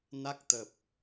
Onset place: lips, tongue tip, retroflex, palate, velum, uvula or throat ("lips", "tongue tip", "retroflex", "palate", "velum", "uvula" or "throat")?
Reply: tongue tip